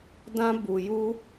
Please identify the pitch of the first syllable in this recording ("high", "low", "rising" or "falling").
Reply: high